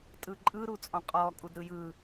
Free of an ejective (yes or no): no